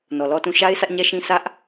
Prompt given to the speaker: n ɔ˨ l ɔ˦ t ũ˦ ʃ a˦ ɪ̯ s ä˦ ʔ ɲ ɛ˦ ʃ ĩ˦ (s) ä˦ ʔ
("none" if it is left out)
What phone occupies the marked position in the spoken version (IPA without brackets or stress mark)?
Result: s